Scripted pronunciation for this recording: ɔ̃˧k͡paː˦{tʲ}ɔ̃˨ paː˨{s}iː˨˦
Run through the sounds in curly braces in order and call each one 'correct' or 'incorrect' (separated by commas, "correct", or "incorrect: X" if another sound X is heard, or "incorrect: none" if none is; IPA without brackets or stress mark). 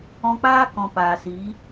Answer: incorrect: k, correct